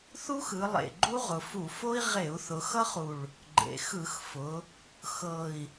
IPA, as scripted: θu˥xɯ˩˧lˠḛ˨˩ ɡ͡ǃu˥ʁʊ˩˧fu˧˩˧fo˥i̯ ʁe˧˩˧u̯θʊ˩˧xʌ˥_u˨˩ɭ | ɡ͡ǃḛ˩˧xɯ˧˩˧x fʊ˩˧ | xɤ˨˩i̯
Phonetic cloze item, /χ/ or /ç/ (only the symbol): χ